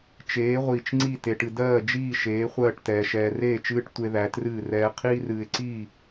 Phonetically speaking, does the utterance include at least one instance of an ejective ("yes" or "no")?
no